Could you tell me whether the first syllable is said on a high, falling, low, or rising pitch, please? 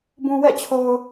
low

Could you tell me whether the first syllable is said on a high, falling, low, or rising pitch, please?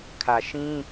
low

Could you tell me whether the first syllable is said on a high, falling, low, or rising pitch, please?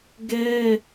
high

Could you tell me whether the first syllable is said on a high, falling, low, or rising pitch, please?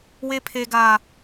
high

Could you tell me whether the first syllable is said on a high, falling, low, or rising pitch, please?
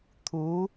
rising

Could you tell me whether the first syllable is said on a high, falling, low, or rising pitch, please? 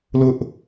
high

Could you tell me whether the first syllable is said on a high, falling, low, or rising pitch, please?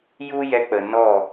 high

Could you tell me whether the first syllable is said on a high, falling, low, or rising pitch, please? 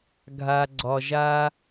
low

